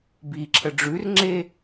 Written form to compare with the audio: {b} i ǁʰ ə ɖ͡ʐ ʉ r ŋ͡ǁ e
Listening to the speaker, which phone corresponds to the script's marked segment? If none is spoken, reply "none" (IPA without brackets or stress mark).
b